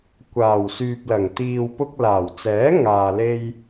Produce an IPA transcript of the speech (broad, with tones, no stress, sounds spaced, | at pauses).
kʷ aː˨˩ w s yː˨ p̚ l ɐ˨˩ ŋ t̪ iː˨ w p ʊ˧ k̚ l aː˨˩ w t͡s ɛː˨˥ ŋ aː˨ l e˧ j